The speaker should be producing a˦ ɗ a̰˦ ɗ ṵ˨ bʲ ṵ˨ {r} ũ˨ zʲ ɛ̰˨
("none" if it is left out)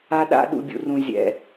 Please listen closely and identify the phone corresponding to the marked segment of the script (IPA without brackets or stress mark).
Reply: r